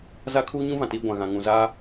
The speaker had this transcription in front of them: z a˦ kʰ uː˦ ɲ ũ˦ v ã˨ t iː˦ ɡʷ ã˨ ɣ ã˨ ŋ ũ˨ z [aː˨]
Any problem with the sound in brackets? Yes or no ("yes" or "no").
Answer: yes